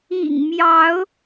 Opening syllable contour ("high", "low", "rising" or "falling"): low